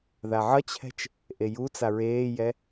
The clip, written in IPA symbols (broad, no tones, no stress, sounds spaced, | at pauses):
ð a ʕ ʌ t͡ɕʰ ɛ̤ t͡ʃ | ʔ e j u t͡s a ɹ eː j ɛ